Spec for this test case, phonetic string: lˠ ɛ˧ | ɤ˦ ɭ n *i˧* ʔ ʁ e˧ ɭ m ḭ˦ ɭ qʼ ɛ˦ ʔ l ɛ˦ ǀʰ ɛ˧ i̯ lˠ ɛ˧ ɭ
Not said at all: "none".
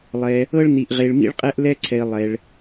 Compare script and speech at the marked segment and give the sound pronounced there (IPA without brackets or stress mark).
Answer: i˧